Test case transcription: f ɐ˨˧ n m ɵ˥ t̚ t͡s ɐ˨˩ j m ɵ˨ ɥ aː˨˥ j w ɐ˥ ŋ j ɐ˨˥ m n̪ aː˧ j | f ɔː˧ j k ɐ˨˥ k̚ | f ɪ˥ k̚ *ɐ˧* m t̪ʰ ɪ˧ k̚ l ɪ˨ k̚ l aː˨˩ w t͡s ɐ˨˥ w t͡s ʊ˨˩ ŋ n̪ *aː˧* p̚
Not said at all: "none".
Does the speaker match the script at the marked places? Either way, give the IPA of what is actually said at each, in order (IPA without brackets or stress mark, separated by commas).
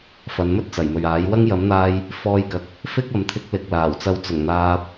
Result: ɐ˨˧, aː˧